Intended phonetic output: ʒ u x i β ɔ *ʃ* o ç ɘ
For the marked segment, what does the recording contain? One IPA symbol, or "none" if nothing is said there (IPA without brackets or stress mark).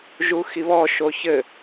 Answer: ʃ